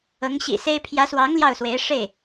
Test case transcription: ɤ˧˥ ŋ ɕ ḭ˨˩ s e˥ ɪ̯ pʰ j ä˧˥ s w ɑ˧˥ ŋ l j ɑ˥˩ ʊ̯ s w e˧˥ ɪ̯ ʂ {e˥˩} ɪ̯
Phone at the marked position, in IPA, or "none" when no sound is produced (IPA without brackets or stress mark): e˥˩